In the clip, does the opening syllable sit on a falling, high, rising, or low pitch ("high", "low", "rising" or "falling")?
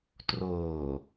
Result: low